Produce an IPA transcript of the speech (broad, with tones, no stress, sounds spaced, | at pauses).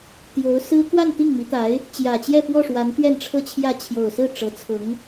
t̪ j o˧˥ ʊ̯ s ɹ̩˥ k w a˥˧ n t̪ i˥˩ ŋ m i˧˥ t̪ a˧˥ ɪ̯ | t͡ɕ j ä˨˩ t͡ɕ j ɛ˥˧ p w ɔ˥˩ ʂ w a˧˥ n t̪ ɥ ɛ˥˧ n ʈ͡ʂʰ ɤ˥˧ t͡ɕʰ j ä˥˩ t͡ɕʰ j o˨˩ ʊ̯ s ɹ̩˥˩ ʈ͡ʂ ɤ˧˥ t͡sʰ ʊ˧˥ ŋ